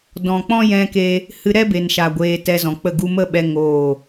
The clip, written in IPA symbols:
dɔ̃˨k͡pɔ̃˦jɛ̃˧ke˧ | hɨ˧ɾɛ˦be˨nʃa˨ ɡʷeː˧ tɛ˧zɔ̃˨k͡pə˦˨ɡu˦ mə˦ɓɛ˧ ŋoː˦˨

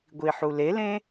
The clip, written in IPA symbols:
ɡʷiħulelẽ

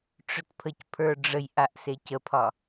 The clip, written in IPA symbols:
ʈ͡ʂœtpʰəcpʰə˞ɖ͡ʐəj ʔaʔsecəpʰɒ

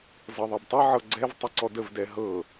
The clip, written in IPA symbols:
zɤðˤɤbtˤɘ ʕɤɡ͡ǀɛv tˤəǀɔdəv dɛɦɤ

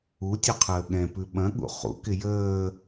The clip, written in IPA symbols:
utʲʉqʰəː ɠɛ̃pʉ ɓɐ̃ɠṵ χṵkɪ jəː

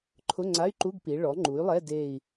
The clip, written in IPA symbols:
ǃʰʊ˧˥˧ŋ͡ǀa˧˥˧y̯ǃu˧˥˧ɡ pi˩˥ ɭɔ˩˥ŋ͡ǃu˩˥y̯lˠɛ˧˥˧ de˦˨i̯

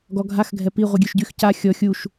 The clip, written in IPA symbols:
ɡɔɡʱax ɡʱɛpi ʁʷiɡʲøʃɟyx ca xʲɔ xʲuʃ

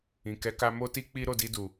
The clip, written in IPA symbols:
ĩ˨ kɛ˨˦ka˧ mo˦ti˦ k͡pi˦ ɾo˦˨di˧du˨

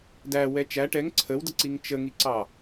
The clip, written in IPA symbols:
dæwɛ t͡ʃæ ʈɛŋ ǀʰəwdəǀiŋ t͡ʃəŋiǀɑ

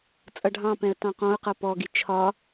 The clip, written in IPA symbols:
t͡sʼʌɖʱɑ̃pɛ̃ə̯ tɑ̃qɔ̃ʊ̯qʌ pɔɡi t͡ʃʰɒ

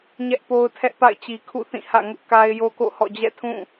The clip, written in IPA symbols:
ɲɛ˦ʔpo˦ʊ̯tʰɛ˦ʔpa̰˦˨ɪ̯ t͡ɕi˨kʰṵ˦˨ θĩ˦˨hä̰˦˨ŋʊ˦ʔ ka˦ɪ̯jo˦ko̰˦˨hɔ̰˦˨ d͡ʑɛ̰˦˨tʰũ˦˨

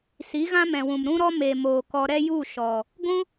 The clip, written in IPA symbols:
si˨˦ɣã˦mɛ̃˨wũ˨m ɾũ˦ɾɔ˦ me˨ moː˨kɔ˧ ɾɛ˦ju˦˨ ʃɔ˨ | ɡʷũ˦

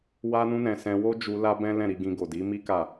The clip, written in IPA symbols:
wa˦nũ˦nɛ̃˧ sɛ̃˧wo˦d͡ʒu˧ la˦bɛ̃˦ lɛ̃˦˨ɾi˧ɡĩ˧ ɡo˨di˨˦mi˦ ka˦˨

